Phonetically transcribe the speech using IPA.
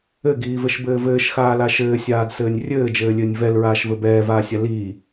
ɘɡiːvɘʃbɘː vɘːʃxaːla ʃɘːsʲaːdsɘːnʲ rʲɘːd͡ʒɘːlʲɘːnʲ vɛlɹaːʃvɘ bɛːvaːsʲa liː

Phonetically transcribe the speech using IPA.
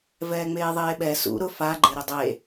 vɛːŋ͡meːðˤeːɓɛ sṵ ɾʊ faɡ͡ǃe ɾɪdˤe

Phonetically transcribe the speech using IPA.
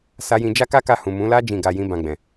sa˦jĩ˦ d͡ʒa˦ka˦ka˧hũ˨ mũ˨˦la˦ d͡ʒĩ˦˨ɡa˧jĩ˦ bã˧ɡ͡bɛ̃˨

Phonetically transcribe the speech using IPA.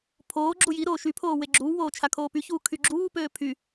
pʰoː ɡ͡ǁujiɾoː ʃypʰoː weɡ͡ǁuːwoː t͡ʃʰakʰoːpyçuː kʰyɡ͡ǁuːpøː pʰy

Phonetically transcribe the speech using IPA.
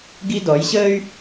ɡi˦dɔ˨˦jɕəː˦y̯

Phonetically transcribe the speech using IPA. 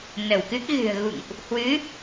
nə˧˩wkɨ˦˥k̚ɣɨ̤˨˩ə̯ ɣṵ˧˨ŋʔ | hwɨ˨˦

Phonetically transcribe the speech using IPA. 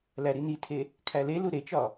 læɾinitʰe | kʰælelu ɾet͡ʃɒ

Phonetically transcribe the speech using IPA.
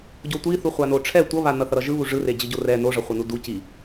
ɟotʷiθu χʷanoʈ͡ʂʰɛ tʷʌβa nʌθʌɾʌʒɯ βuʐɯre d͡ʑɯɟorɛ noʐʌχʷʌnu du ci

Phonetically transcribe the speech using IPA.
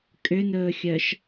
kʼʏnɵːxʲœʃ

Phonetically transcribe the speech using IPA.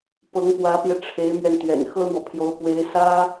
pɤ˧˥ŋpwä˧˥pjɛ˧ ʈ͡ʂʰe˧˥ɪ̯mɥɛ˧n t̪ɥɛ̰˨˩n xɤ˥n̪wɔ˨pʰjo˧˥ʊ̯ pwe˧˥ɪ̯sä˥

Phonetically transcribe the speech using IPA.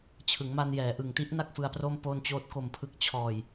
t͡ɕʰɯ˩˦ŋma˧njɛː˩˦ ʔɯ˨˩ŋti˦˥ʔ na˥˩k̚fɯ˧a̯pro˥˩m po˥˩nt͡ɕoː˥˩t̚ ko˨˩mpʰɯ˨˩k̚ t͡ɕʰɔː˨˩j

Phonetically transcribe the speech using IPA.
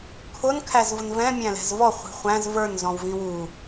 kʰʊn kʰæzvʊnvɛ̃ mʲæ̃lɛ̤zvɔ χʷi̤χʷæ̃z və˞n zɔ̃wvĩwu

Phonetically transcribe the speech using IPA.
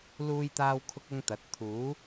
luː˥jt̪aː˥wkʰʊ˥k̚ ʊ˥ŋt̪ɐ˨˥t̚ t̪ʰuː˨˥

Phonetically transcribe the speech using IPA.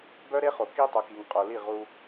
bœ˦ɾe˦ χo˨ ki˦ tˤœ˨ki˨ŋ qʼo˨li˦˨ ʁu˦

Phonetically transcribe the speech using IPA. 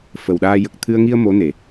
fə˨˩wɗaː˧ jə˨˩k̚t̪ʰɨ˧ə̯ ŋi˧ə̯ mo˧˥ne˨˩˨

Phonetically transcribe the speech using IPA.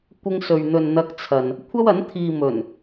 kʷɪ˧ŋsɵ˨ɥn̪ɵ˨n n̪ɐ˧k̚t͡sʰɐ˨n | kʷʰɐ˥wɐ˨˥n t̪ʰiː˨mɵ˨˩n

